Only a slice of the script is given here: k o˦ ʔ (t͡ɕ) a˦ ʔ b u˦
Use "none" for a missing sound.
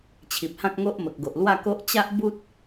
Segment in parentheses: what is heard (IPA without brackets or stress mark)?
t͡ɕ